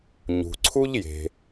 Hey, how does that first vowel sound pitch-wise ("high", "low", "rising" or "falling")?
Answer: low